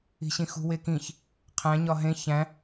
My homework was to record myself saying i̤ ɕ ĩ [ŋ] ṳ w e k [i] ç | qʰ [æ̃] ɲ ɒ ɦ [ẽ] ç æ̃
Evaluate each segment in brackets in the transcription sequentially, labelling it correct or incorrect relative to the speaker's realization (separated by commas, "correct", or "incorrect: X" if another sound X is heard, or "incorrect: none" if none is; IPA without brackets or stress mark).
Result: incorrect: x, incorrect: ĩ, correct, correct